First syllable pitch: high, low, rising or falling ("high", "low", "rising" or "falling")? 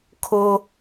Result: high